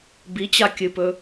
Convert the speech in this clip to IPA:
bit͡ɕa kʲɨpɵ

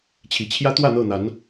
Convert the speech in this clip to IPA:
t͡ɕʰi˨˩t͡ɕʰjä˦ t̪wä˥˨n̪ɤ˥˨n̪a˨˦n

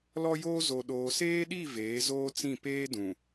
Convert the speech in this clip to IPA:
lɔ˦joː˦ zo˨ɗoː˨seː˦ɗi˦˨ veː˨˦zoː˦t͡sĩ˦˨ peː˦dũ˨

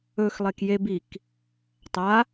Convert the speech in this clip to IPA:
ɵxlˠek jebik | tˤa

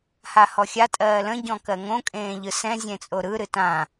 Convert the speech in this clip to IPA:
hahɔxʲa tʼɜːlə̃ ɟɔ̃kɜŋõ kʼẽːʎɯsɛ̃ zʲẽt͡sʼoɾɯ ɾɨtã

